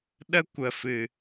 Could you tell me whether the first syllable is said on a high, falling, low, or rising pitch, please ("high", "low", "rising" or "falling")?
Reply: high